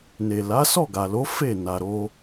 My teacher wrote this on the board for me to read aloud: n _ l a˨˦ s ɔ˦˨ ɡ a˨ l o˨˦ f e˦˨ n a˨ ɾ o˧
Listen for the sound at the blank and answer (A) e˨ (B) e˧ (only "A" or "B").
A